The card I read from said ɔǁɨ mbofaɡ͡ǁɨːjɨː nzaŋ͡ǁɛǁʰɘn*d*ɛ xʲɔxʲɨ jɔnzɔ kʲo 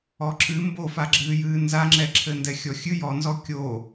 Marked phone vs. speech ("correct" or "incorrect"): correct